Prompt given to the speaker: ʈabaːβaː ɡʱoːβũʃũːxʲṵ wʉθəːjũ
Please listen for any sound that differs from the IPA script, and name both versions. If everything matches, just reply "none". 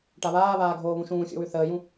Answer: b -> β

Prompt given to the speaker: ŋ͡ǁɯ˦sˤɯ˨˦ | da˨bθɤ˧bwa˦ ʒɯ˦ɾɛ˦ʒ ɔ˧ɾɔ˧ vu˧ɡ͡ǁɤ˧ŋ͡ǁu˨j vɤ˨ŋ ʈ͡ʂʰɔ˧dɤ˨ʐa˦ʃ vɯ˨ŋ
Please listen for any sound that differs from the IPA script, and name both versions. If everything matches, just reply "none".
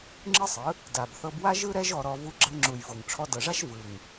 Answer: none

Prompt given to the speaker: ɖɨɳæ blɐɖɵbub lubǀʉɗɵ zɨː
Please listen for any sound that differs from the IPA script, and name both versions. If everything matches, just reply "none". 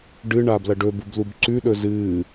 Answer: æ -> a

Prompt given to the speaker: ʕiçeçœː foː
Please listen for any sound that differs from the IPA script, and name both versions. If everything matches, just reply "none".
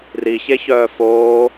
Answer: ʕ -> r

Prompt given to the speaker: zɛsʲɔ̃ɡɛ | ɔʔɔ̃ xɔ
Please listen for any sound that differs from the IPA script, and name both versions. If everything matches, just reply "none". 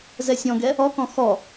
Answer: ʔ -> k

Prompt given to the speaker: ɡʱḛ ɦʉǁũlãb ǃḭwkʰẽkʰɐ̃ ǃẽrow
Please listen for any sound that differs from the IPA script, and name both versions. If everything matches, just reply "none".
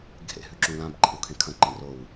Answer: none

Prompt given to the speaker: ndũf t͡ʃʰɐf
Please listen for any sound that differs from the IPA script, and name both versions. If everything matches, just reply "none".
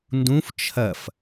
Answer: none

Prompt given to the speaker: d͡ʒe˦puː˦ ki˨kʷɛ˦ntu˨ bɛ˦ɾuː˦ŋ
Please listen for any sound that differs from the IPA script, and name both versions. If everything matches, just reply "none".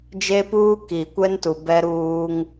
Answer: none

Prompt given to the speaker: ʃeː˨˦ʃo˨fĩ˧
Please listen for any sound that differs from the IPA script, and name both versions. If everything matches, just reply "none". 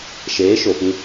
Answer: none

